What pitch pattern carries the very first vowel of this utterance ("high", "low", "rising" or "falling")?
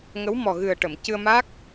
rising